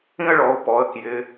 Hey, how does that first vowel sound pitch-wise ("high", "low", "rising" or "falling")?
high